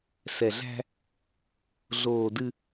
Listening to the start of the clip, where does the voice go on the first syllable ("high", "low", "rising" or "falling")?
low